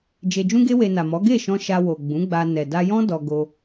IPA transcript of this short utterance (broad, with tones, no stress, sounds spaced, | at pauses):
d͡ʒ e˧ d͡ʒ ũ˦ ɡ e˦ w e˧ n a˨ m ɔ˨˦ ɡ e˦˨ ʃ ɔ̃˧ ʃ a˧ w o˨ ɡ͡b ũ˨˦ ɡ͡b a˧ n ɛ˨ d a˧ j ɔ̃˦ d ɔ˧ ɡ o˧